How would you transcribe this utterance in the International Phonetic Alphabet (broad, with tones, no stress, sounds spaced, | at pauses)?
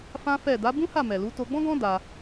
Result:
f ã˦ f ɛ˦˨ d a˨˦ b ũ˦ h a˦˨ m ɛ˨ l u˨˦ t o˧ ɡ͡b ɔ̃˦ ɡ ɔ̃˦ d a˧